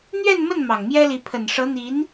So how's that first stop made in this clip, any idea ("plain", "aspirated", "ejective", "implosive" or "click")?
aspirated